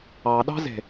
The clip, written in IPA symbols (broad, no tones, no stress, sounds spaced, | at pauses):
ɑ ɗ ɑ̤ z e̤